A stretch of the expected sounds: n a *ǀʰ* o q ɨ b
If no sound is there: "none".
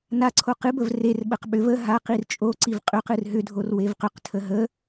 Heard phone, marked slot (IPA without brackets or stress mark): ǀʰ